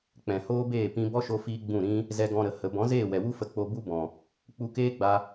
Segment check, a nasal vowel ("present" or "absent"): present